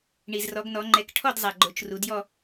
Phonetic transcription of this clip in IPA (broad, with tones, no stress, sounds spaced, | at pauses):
ɳ i˩ z r ɔ˩˧ ɡ n ɔ˩˧ ŋ͡ǃ ɛ˩˧ k ʈʰ ɔ˥˧ d zˤ a˩ ɡ͡ǃ o˩˥ t͡ʃ r u˩˧ d j ɔ˥˧